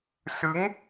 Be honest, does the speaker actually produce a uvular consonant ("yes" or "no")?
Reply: no